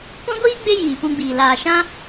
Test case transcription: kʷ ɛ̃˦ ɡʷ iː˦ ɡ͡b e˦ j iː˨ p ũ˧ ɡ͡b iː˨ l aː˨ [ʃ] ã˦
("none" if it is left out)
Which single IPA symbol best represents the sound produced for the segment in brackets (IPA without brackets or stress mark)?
ʃ